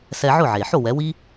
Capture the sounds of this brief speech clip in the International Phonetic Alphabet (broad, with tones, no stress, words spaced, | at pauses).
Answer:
sɛ˧ʕʊ˥˩ʕe˩ħo˥˩ wɛ˩˥wi˥